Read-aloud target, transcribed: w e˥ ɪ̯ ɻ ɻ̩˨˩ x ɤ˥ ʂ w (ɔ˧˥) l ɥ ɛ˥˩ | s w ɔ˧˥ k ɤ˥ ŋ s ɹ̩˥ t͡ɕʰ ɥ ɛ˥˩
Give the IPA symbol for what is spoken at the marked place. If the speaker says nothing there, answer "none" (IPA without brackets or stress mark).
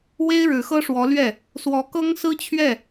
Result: ɔ˧˥